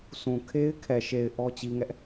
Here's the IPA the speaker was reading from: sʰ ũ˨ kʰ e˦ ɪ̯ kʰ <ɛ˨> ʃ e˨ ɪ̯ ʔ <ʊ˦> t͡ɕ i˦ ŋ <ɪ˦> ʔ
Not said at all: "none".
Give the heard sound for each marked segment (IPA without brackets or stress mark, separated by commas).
ɛ˨, ɔ˦, ɛ˦